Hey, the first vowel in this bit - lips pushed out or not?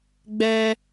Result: no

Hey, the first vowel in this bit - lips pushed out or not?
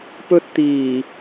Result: yes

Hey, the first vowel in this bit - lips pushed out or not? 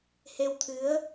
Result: no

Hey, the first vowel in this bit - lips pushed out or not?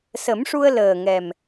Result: no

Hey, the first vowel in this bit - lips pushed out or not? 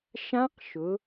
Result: no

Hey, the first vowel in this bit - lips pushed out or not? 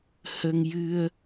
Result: no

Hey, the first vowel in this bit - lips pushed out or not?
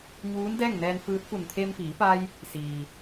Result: yes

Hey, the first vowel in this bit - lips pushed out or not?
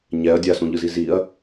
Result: no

